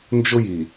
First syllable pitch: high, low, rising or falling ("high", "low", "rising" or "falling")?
high